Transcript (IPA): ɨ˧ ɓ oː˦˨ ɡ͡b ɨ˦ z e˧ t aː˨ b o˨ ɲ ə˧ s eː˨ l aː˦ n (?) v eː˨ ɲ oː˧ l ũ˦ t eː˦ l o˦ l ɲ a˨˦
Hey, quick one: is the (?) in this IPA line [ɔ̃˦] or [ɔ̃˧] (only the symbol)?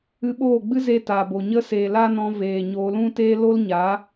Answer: ɔ̃˧